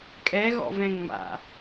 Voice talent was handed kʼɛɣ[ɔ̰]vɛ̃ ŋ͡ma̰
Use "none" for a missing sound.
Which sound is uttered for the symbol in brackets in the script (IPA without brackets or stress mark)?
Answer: ɔ̰